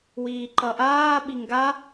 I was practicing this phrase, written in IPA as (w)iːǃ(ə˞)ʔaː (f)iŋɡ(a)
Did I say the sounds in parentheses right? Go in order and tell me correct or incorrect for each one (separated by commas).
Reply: correct, incorrect, incorrect, correct